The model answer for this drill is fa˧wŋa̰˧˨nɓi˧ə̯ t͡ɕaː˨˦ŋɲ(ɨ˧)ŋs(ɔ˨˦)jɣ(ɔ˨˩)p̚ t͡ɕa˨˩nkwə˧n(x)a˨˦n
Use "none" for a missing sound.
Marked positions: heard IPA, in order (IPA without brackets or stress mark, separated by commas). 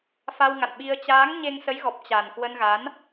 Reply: e˧, ə˨˦, ɔ˨˩, ɣ